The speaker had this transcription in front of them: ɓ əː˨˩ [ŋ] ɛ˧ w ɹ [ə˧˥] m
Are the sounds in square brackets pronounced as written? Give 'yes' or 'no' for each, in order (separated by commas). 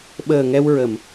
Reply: yes, no